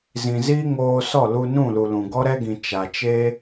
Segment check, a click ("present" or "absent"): absent